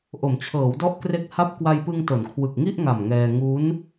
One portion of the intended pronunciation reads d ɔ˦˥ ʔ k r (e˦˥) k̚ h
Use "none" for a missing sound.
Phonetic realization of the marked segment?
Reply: e˦˥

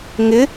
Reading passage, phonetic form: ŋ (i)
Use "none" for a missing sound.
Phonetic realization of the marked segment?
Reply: ɪ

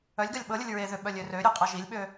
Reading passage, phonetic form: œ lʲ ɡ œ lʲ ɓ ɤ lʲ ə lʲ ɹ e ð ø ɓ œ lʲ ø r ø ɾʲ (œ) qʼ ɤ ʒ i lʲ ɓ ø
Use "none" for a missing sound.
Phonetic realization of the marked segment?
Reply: ø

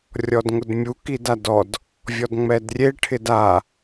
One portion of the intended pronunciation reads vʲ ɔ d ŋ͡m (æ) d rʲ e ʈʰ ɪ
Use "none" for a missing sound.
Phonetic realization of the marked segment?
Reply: ɛ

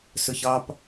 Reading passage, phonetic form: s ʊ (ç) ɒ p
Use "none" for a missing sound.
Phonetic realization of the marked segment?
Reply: ç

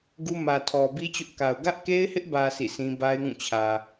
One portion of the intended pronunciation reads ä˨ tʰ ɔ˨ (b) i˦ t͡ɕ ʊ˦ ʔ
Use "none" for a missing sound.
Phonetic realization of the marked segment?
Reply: b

